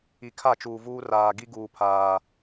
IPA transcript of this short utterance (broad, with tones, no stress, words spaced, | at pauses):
i˨kʰa˦˨t͡ʃuː˨vuː˦ raː˨ ɡi˦ɡuː˨pʰaː˨